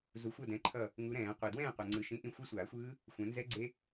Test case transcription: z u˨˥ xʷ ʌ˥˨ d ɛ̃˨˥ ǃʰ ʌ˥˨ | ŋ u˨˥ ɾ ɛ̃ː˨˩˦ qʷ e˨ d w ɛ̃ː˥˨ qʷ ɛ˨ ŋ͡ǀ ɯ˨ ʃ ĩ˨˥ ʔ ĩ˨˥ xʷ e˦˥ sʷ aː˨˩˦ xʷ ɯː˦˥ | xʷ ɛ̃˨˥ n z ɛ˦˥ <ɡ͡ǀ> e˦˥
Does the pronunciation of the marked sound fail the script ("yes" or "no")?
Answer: no